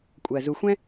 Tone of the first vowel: low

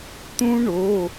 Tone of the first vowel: high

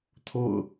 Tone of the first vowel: falling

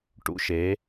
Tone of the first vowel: high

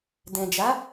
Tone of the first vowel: low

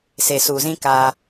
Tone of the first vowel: low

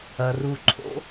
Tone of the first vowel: low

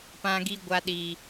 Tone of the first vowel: high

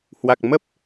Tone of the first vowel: low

